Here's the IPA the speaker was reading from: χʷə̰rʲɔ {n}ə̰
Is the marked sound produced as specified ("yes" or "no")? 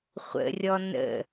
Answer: yes